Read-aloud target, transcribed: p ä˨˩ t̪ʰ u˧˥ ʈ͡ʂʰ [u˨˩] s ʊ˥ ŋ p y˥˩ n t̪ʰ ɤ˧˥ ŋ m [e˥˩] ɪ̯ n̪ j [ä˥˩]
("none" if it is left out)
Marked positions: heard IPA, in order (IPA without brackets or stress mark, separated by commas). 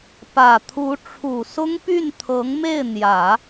u˨˩, e˥˩, ä˨˩˦